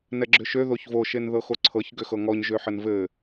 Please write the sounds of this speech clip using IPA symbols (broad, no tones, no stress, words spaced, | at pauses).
nɛɡ͡ǁʏʃø ðoçvo ʃenðɤxoǀʰɤç ɡʏxɤŋɔɲ ʒøħɘnvɘ